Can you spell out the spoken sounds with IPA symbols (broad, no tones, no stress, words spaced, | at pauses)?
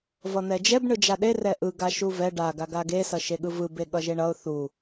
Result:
vʌn̪ɛd͡ʒɛb ɳɯd͡ʒaɗe rɛʔɯ ɡaʃuvɛ ɖa ɡaɡaɡe sʌʃeɠɯvɯ beɠʌʒeɳʌʊ̯ θu